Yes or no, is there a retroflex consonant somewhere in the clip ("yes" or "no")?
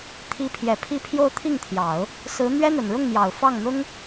yes